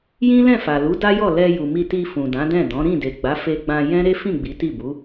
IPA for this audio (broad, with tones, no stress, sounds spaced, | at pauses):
j ĩ˦ l ɛ̃˦˨ f a˨ l u˨˦ d a˦ j ɔ˦˨ l ɛ˧ j u˨ m i˧ t i˧ f ũ˨ d ã˨˦ d ɛ̃˦˨ d ɔ̃˨˦ ɾ ĩ˦˨ d e˨ ɡ͡b a˨˦ f e˧ ɡ͡b ã˧ j ɛ̃˦ ɾ e˦ f ĩ˦˨ ɡ͡b i˨˦ t i˦˨ b u˨˦